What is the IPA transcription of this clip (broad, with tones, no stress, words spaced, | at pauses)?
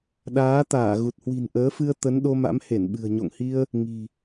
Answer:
ɗaː˨˦ t̪aː˧˩ɣu˨˩t̚ hwi̤˨˩n ʔəː˨˦fɨ˧ə̯ t̪ə˨˦nɗo˧ma̰˧˥m he˧˩nɓɨ̤˨˩ə̯ ɲo̰˧˨ŋhi˧ə̯ | ŋi̤˨˩